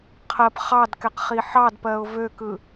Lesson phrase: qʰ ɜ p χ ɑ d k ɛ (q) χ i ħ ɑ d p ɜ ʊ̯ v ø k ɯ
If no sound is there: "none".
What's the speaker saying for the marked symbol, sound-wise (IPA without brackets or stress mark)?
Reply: q